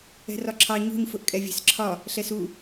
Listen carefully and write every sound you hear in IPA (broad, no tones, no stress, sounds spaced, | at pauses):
ɛ̤ r ɒ ǁʰ ɑ ɲ ṳ ɲ f ʊ ʔ kʼ ɛ vʲ ɛ̤ s ǁʰ ɒ | ɬ ɛ s u